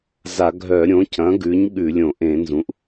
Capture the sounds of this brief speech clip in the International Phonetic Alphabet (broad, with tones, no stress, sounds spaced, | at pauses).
z a˧˩˧ ɡʱ œ˧˩˧ ɾʲ õ˩˥ c ɐ̃˩˥ ɡ ʉ˩˥ ɲ ɠ ʉ˧˩˧ lʲ õ˧˩˧ ʔ ẽ˧˩˧ n z ũ˩˥ ʔ